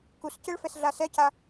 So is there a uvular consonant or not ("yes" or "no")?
no